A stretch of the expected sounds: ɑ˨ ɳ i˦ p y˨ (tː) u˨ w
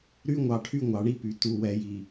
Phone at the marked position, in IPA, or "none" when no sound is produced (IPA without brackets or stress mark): t